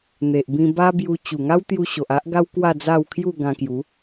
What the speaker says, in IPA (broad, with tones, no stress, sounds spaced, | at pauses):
n̪ e˨ ʔ b ĩ˧ b a˦ b j u˧ t͡ɕ u˨˩ ŋ a˦ w t̪ j u˧ ɕ o˨ ʔ a˦ ʔ ɡ a˦ w k w a˥˧ d͡z a˥˧ w kʰ j u˥˧ ɡ ã˧ k j u˨˦